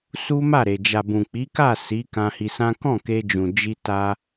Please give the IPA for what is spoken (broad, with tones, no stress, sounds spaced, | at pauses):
s u˦ m a˦˨ ɾ e˨ d͡ʒ a˨ b ũ˨ k͡p i˨˦ k a˦˨ s i˨˦ k ã˧ h i˧ s ã˦ k ɔ̃˦˨ k e˧ d͡ʒ ũ˨ d͡ʒ i˧ t a˧